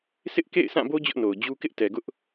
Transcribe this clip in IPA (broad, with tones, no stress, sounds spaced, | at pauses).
s ɪ˦ ʔ k ḛ˦˨ ɪ̯ sʰ ã˦˨ b o˦ d͡ʑ ʊ˦ ʔ n o˨ ʊ̯ d͡ʑ u˦ k ɪ˦ ʔ t ɛ˨ ɡ ʊ˦ ʔ